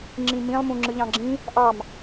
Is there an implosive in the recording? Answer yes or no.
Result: no